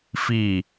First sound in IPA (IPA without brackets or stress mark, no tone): f